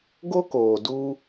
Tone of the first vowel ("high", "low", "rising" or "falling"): high